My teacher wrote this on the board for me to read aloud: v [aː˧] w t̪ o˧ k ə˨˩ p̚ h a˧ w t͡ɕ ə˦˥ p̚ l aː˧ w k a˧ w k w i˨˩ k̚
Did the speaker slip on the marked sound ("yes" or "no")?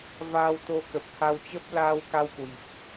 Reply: no